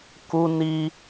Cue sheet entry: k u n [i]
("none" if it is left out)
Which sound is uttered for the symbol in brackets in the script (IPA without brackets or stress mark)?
i